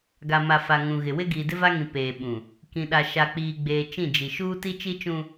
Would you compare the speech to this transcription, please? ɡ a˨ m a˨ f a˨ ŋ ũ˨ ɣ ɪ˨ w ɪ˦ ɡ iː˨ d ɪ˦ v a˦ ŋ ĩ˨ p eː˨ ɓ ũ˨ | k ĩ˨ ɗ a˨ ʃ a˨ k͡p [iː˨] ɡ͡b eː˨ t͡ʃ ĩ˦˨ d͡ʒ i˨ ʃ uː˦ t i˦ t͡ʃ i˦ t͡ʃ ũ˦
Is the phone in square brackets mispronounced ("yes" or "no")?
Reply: no